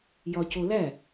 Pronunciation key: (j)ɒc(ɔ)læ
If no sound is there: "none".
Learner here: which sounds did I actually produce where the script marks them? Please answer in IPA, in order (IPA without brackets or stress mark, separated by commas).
j, o